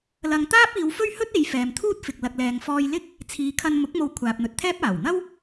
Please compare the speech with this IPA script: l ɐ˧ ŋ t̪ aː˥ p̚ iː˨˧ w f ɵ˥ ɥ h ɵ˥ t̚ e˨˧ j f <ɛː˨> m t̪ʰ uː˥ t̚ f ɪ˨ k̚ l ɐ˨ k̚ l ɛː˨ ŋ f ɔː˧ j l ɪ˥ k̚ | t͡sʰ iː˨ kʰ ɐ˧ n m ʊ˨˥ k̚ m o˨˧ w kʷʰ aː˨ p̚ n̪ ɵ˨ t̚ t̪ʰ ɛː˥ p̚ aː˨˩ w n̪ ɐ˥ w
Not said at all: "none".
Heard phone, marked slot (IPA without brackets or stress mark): ɛː˨